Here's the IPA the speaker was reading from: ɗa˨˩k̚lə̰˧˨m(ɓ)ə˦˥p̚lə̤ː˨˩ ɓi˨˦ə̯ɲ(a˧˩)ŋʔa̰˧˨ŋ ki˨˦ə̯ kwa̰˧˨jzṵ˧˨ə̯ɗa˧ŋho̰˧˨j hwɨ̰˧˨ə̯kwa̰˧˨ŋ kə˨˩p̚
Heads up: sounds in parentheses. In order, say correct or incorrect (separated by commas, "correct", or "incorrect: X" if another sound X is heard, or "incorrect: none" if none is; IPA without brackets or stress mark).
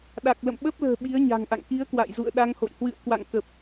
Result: correct, incorrect: a̤˨˩